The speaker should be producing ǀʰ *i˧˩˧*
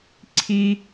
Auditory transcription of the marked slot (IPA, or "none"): i˥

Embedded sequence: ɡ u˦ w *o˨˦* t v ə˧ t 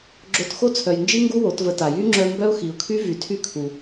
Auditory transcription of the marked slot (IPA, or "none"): o˨˦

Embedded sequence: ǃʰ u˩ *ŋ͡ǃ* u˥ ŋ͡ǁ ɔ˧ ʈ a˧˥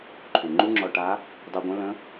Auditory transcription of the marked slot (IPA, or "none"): ŋ͡ǃ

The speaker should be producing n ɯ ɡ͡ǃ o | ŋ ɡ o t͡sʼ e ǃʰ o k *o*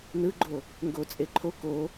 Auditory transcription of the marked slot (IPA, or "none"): o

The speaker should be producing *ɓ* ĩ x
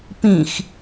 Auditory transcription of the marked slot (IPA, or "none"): p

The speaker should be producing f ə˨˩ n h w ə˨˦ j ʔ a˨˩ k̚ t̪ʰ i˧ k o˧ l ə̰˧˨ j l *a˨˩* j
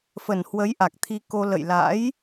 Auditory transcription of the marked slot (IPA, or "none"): a̰˧˥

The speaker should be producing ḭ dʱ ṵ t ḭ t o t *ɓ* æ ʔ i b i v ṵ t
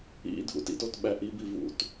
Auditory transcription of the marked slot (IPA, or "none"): ɓ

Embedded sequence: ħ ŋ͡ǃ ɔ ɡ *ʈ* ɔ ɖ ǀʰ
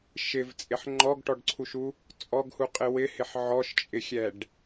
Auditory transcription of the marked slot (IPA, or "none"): ʈ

